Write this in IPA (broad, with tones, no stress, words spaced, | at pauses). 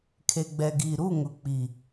kʰe˨ɡ͡bɛ˨ɡiː˨ ɾu˦˨ŋʊ˨k͡pi˨